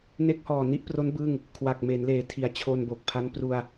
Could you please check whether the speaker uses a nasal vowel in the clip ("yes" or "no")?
no